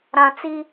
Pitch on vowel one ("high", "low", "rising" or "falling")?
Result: low